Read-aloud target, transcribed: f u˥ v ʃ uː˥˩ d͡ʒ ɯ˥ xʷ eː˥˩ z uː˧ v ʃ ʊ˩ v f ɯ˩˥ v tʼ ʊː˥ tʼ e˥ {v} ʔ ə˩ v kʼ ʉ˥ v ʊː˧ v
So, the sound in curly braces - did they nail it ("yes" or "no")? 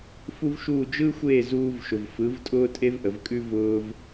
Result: yes